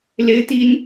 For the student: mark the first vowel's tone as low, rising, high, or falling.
high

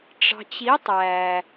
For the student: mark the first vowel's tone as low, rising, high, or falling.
low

